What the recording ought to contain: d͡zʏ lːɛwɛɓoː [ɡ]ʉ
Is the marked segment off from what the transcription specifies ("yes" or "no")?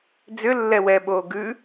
no